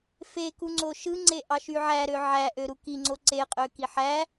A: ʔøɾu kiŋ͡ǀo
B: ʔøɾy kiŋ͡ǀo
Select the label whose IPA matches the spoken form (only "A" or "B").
A